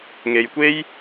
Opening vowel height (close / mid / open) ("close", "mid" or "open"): mid